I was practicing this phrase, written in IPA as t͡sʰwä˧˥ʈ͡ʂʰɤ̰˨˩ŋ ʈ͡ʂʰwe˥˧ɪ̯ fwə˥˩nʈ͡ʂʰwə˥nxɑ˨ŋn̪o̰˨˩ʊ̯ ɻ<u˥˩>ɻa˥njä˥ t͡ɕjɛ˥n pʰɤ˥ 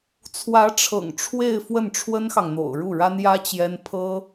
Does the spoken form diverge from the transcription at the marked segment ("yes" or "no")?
no